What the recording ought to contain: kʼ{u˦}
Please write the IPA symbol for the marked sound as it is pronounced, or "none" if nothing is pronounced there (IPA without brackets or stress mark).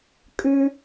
ʉ˦